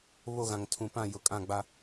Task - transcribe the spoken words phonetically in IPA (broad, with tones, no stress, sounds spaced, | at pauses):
β o˦˨ ɣ ã˨ ŋ tʰ ũ˨ p ã˦˨ j ʊ˨ kʼ ã˦˨ ɡ͡b a˦